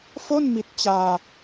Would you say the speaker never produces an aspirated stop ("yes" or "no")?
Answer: yes